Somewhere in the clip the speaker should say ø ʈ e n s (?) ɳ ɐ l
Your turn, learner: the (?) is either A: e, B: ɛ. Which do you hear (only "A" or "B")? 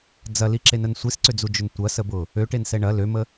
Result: B